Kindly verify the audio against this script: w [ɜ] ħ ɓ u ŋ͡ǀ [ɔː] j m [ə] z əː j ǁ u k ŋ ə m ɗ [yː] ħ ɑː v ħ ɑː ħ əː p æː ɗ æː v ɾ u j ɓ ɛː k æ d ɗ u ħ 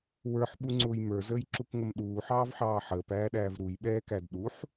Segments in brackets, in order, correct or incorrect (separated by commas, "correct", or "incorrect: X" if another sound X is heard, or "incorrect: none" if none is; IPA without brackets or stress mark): incorrect: ə˞, incorrect: ʊː, incorrect: ə˞, incorrect: uː